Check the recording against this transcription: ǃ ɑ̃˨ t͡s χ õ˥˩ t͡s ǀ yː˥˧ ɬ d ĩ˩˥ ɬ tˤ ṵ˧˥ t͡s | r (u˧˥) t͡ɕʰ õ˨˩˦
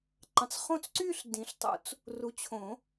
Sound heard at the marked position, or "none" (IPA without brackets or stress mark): u˨